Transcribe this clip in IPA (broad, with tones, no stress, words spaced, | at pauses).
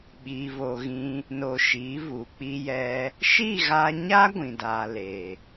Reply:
ɓiː˧vo˧ɣĩ˦ | no˧ʃiː˨˦vu˨ k͡pi˧jɛ˧ | ʃi˦˨ɣa˧ɲa˦ ɡʷĩ˨daː˨ le˨